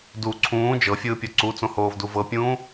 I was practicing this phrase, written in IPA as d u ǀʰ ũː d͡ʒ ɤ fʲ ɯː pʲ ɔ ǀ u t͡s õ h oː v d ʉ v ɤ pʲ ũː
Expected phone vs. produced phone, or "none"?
ʉ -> u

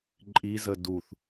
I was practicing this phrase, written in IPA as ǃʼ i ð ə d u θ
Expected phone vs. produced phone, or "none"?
ð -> z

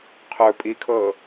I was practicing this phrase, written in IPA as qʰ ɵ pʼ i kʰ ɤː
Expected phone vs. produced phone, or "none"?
none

